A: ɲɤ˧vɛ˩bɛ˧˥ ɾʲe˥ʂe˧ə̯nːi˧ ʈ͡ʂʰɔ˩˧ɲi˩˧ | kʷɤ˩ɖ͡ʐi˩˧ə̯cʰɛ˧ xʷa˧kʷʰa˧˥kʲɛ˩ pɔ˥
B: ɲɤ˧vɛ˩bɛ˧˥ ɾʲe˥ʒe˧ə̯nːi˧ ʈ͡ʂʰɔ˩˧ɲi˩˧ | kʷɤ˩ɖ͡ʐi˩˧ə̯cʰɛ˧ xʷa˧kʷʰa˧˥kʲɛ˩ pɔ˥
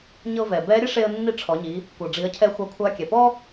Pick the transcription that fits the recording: A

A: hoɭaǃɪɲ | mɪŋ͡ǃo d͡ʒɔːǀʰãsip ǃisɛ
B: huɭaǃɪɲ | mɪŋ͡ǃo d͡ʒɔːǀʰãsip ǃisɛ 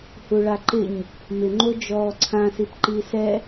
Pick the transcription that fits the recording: B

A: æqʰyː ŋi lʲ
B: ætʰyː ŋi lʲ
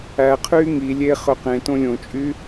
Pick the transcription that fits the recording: A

